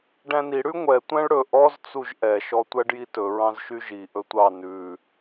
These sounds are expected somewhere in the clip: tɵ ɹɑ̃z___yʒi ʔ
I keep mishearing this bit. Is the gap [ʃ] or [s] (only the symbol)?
ʃ